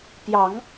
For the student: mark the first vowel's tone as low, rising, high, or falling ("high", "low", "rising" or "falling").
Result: rising